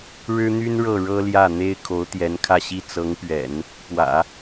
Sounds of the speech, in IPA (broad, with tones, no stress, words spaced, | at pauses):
ɻɻ̩˥n̪y˥nɻɤ˥˩ ɻɤ˥ljä˥˩n̪e˥ɪ̯ kʰo˧˥ʊ̯t̪jɛ˧˥nkʰä˥˧ɕi˥˩ t͡sɤ˧˥ŋpɥɛ̰˨˩˦n | pwä̰˨˩˦